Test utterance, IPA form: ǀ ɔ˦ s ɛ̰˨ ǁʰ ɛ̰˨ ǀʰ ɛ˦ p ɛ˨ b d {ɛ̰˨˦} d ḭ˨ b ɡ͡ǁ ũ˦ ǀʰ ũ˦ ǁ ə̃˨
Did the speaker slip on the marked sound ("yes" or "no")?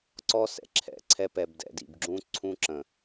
yes